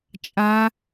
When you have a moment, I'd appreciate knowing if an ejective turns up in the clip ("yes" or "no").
yes